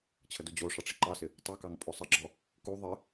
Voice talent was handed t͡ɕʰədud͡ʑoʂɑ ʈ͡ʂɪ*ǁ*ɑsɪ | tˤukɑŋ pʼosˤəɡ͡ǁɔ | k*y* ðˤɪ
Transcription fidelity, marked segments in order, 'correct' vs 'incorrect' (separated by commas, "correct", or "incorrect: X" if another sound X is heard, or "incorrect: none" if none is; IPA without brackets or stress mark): incorrect: ǃ, incorrect: u